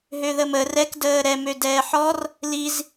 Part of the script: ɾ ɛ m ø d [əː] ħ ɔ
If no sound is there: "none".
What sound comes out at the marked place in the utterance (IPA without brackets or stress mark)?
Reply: ɛː